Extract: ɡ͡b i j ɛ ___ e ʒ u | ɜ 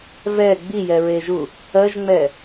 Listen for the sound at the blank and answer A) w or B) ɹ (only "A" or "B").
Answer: B